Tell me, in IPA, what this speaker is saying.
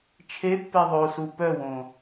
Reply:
t͡ʃʰ e pː e ðˤ o s u p œ w õ

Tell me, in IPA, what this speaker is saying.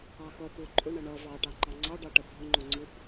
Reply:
ɑ x ʌ p ʊ ǃʼ ʊ ɳ ʌ ɳ ʌ v ɑ ʈ ɑ ŋ͡ǃ ɑ ŋ͡ǀ ɑ ɖ ɑ ʈ ʌ bʱ ʊ ŋ͡ǃ ʊ ŋ͡ǀ ʊ p

